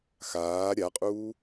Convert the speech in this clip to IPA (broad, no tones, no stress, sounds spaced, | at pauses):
x aː ɾʲ a qʼ uː